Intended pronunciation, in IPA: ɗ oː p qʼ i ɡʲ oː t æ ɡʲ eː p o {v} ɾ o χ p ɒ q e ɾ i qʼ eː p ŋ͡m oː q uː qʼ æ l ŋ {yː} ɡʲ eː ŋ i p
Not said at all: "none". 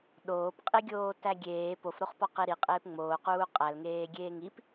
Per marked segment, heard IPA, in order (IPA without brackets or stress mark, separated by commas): f, eː